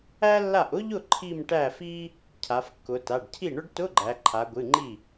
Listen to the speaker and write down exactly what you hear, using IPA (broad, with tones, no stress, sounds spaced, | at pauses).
æ˥ lː a˥˩ ʔ ʊ˥ ʎ ʊ˥˩ ǃʰ i˥˧ m ʈ æ˥˩ f i˥ | cʰ a˩˧ f kː ʊ˩˧ t a˩˧˩ ɖ cʰ i˥˩ ɳ ʊ˥ ɖ t ʊ˧˥˧ ɡ͡ǃ æ˩˧ ǃʰ a˩˧ ɡʷ ɨ˩˧˩ ŋ͡ǃ i˥˩